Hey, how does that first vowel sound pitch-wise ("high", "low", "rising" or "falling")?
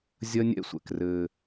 high